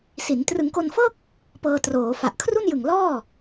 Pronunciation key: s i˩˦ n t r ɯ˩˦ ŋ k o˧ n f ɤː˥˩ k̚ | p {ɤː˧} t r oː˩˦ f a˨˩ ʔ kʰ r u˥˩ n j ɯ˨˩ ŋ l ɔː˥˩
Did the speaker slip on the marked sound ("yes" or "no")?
no